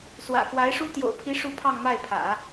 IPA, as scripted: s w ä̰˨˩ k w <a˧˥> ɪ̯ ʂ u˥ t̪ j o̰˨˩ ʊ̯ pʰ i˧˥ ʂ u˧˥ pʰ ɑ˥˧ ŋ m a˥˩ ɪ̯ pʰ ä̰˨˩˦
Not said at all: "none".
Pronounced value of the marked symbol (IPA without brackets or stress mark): a˧˥